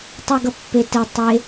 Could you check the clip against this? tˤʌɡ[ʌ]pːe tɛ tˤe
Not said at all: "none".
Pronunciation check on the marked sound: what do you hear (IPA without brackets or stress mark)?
ʌ